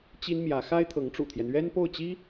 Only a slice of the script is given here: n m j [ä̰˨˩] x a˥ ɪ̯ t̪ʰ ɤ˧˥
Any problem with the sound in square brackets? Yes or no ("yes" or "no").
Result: yes